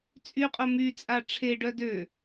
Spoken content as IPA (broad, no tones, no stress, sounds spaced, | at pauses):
t͡sʼ y qʼ o m y t͡sʼ a ʈ͡ʂʰ e ɖ œ d ø